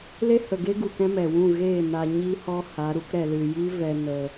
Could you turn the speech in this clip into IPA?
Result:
l e˦ h ə˨ ɡ e˦ ɡ u˨ k ɛ̃˦ m ɛ˨ w ũ˦˨ ɣ eː˦˨ n a˧ ɲ i˧ h ɔ˧ h a˨˦ ɾ u˦ k ɾ ɛ˧ l ɨ˧ j i˦ v ɛ˧ n ə˧

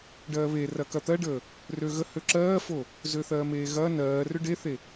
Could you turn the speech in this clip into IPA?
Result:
ɖ ɜː β e r ɐ k ɐ t̪ ɜ ɖ əː | r ø ɣ ə h ø ǁ ɜː f o | z ø θ ɜː m eː ɣ ɐː n ɜː r ʏ ɖ e θ e

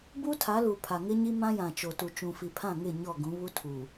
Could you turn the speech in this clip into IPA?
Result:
b u˦ tʰ a˨˦ l u˨ pʰ a˨ ŋ ɪ˦ ɲ i˦ m ã˦ j ã˨ t͡ʃ o˨ t u˨ t͡ʃ ũ˨ f i˨ pʰ ã˦˨ ŋ ɪ˦˨ ɲ ɔ˦˨ ɡ ũ˨˦ β u˦ tʰ u˨

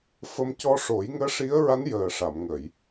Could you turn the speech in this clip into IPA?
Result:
f ə˧ m c ɔ˧ ʂ o˨˩˦ j ŋ əː˧˥ ʂ i˧˥ ə̯ ɹ a˧˥ n j əː˨˩ ʂ a˨˩˨ m ŋ ə˨˩˨ j

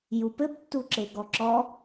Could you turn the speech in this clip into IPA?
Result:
j u p ɘ b tː u ǁ e ɡ ɔ ǁ ɔ

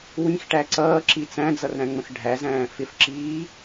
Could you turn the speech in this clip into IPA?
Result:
w ĩ x ʈ æ ǀ ʌː ǁ i t͡s æ̃ d͡z ʌ r ɾ æ̃ ŋ͡m ə̃ x ɖʱ æ z æ̃ː f ɪ f ǁ iː

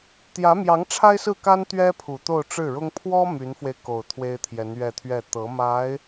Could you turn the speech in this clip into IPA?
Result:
t̪ j ä˧˥ m j ɑ˧˥ ŋ ʈ͡ʂʰ a˥ ɪ̯ s ɹ̩˥˩ k a˥ n t̪ ɥ ɛ˥ pʰ u˨˩ t̪ o˥˧ ʊ̯ ʈ͡ʂ ɻ̩˥˩ ɻ ʊ˥ ŋ pʰ w ɔ˥ m y˧˥ n f w e˧ ɪ̯ k o˨˩ ʊ̯ t̪ʰ w e˥ ɪ̯ t̪ʰ j ɛ˧˥ n ɥ ɛ˥˧ t̪ʰ ɥ ɛ˥˩ t̪ ɤ˧˥ m a˧˥ ɪ̯

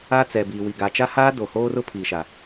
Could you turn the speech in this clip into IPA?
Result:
a˦ t͡s ɛ˨ b iː˨ w i˨ ɡ a˨ t͡ʃ a˦ h aː˦ d o˨ h oː˦ r ʊ˦ pʰ iː˨ ʃ a˨

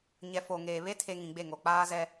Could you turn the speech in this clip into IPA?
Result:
ɲ ɛ˨ f o˨ ŋ eː˨ β e˦ tʰ e˨ ŋ ĩ˨ ɡ͡b e˦˨ ŋ o˨ k͡p aː˦ z ɛ˦

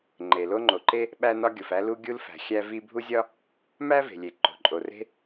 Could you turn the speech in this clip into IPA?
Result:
ŋ͡ǃ e˩ l o˥ ŋ͡ǃ o˩ ǃ e˥ | ɓ æ˥ n ɒ˥ ɡʲ o˩ f æ˥ l u˥ ɡʲ u˥ l f æ̤˩ xʲ æ˥ v i˥ bʱ u˥ zʲ ɒ˥ | m æ˥ v e̤˩ lʲ e˩ ǃ o̤˩ ǃʼ o˩ r e̤˥

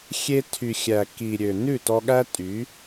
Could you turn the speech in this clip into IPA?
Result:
xʲ e˧ tʰ y˨ xʲ æ˨ k i˨ ɾʲ ø˨ n ʉ˦˨ t ɔ˧ ɠ æ˦ tʼ y˨˦

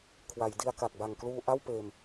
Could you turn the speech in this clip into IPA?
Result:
kʰ w a˩˦ j d i˧ a̯ k a˨˩ k̚ b a˨˩ ŋ k l uː˧ ʔ a˥˩ w p eː˧ m

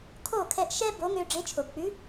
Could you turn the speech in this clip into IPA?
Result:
kʰ o˥˩ kʰ ɛ˧ ʔ ʃ ɛ˥ b o˩˥ ŋ ø˧ ɖ͡ʐ e˩˥ t͡ʃʰ o˩ b k͡p ʉ˩˥

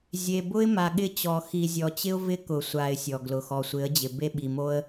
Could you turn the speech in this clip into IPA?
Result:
zʲ e˨ b ʊ˦ ɪ̯ m a˨ ɠ ɪ˦˨ t͡ɕ ɔ˨ x i˨ zʲ ɔ˨ t͡ɕ ɪ˦ ʊ̯ v ɪ˦ k ʊ˨ sʷ a˨ ɪ̯ sʲ ɔ˨ ɡ l ʊ˨ x ɔ˨ sʷ ɪ˨˦ ə̯ d͡ʑ ɪ˨ b e˦ ɓ i˨ m o˦ ə̯

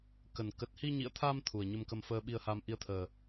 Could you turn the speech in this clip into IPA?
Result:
k ə˨˩ n k ə˨˩ t̚ h i˧ ɲ ḭ˧˨ ə̯ t̪ʰ a˧ m t̪ʰ u˨˩ ə̯ ɲ ə˧ m k ə˧ m f əː˧ ɓ i˧ ə̯ h a˧ m ʔ i˧ ə̯ t̪ʰ əː˨˩

